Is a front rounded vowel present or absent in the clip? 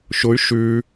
present